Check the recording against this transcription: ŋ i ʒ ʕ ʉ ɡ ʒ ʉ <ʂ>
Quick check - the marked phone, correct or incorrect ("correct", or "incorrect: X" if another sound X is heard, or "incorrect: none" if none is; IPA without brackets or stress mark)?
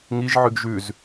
incorrect: z